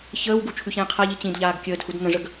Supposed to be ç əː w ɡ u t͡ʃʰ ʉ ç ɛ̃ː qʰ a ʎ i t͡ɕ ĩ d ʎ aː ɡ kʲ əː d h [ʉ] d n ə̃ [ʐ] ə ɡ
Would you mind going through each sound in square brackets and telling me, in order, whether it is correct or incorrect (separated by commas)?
incorrect, correct